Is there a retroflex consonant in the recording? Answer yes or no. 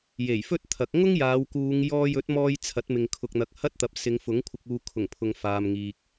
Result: no